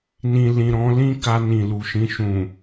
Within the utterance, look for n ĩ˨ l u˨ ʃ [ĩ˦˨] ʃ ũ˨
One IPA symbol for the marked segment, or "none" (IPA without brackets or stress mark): ĩ˧